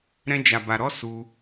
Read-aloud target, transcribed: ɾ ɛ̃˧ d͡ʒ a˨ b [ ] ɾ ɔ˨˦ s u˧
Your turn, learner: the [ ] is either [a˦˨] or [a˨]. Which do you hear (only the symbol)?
a˨